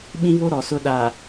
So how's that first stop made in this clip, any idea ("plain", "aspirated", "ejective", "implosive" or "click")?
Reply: implosive